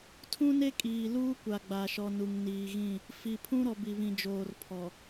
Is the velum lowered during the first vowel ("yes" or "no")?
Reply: yes